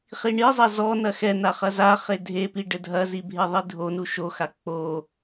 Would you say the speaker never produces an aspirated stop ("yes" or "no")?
yes